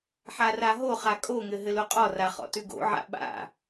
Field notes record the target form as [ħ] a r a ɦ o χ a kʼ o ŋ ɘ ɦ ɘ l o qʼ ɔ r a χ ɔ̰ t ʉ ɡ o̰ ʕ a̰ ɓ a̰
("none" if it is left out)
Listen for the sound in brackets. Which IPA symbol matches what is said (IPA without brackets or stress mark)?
ħ